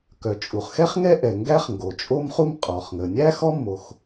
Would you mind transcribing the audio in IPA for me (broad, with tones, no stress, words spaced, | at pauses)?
kœ˩t͡ʃʼu˩χxɛ˥χŋɛ˥ ʔɛ˩ ŋɡæ˥χŋɡo˩t͡ʃʼo˥mχu˥m qʼɔ˩χŋə˩ nʲæ˥ xɔ˥mːo˩x